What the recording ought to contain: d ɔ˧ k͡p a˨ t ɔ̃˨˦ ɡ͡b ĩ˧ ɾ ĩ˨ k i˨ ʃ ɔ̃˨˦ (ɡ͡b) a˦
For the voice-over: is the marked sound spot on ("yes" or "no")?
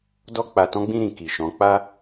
no